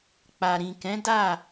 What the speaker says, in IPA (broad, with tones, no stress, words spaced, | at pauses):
k͡pa˨ɾĩ˨kɛ̃˨˦da˦˨